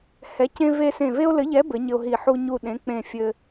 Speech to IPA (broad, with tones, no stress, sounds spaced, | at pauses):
h ɛ˨˥ c ẽ˦ v e˦ s ẽ˦˨ v e˦ o̯ l ɘ˨˥ ʎ ɛ˨˥ b ɘ˨˥ ɲ ɘ˦ o̯ ɦ i˦˨ ħ u˦ ɲ u˦˨ ɗ ẽ˨˥ k͡p ẽ˦˨ fʲ ɘ˦